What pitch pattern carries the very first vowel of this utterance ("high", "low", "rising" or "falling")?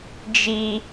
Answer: high